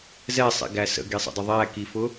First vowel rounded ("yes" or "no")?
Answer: no